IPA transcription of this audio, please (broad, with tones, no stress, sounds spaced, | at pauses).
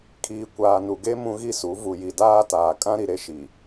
kʰ iː˨ kʷ aː˨ n u˨ ɡ e˦ m ũ˦ ɣ i˦ s u˨˦ v u˨ j i˨ d aː˦ t aː˨ kʼ ã˦ ɾ i˨ ɾ e˦ ʃ i˨